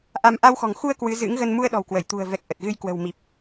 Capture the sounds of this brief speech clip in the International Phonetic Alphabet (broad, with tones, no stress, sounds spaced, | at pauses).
ʔ a˧ m ʔ a˧ w x ɔ̤˨˩ ŋ x u˧ ə̯ k w ɨ˨˦ z ɨ̰˧˥ ŋ ɣ ə˧ n m u˧ ə̯ ɗ ɔ̤˨˩ w k w ə˧˩ j t̪ ṳ˨˩ ə̯ v ɛ˨˩ k̚ ʔ ə˨˩ t̚ ɣ ɨ˧ j k w ə̤˨˩ w m i˨˩ p̚